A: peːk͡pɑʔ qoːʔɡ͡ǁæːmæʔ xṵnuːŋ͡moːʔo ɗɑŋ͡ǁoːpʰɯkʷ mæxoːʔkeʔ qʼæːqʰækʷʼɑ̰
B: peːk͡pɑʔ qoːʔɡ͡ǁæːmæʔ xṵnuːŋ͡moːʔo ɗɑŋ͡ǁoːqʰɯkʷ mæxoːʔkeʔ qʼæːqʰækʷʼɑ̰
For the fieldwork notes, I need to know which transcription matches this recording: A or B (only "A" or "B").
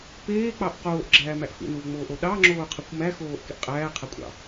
B